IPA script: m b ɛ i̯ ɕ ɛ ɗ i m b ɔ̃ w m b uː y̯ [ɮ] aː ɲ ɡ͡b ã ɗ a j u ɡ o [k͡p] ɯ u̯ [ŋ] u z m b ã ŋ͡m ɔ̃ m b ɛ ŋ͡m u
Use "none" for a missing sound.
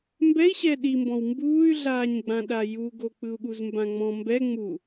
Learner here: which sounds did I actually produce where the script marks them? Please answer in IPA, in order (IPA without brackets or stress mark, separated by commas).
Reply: ɮ, k͡p, ɠ